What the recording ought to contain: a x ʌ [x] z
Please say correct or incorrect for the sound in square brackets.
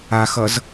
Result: incorrect